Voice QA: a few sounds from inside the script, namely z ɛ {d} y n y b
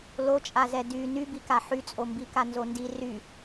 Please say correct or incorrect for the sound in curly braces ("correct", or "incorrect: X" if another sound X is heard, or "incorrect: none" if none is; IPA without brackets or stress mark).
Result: correct